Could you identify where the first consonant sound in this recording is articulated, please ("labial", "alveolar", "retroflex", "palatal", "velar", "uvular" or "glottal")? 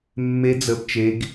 labial